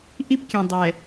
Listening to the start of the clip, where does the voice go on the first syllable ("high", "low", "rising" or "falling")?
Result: high